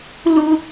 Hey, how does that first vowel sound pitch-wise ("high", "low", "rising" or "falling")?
high